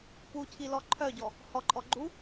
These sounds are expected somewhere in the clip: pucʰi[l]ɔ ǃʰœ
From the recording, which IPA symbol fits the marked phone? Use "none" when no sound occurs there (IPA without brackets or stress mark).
l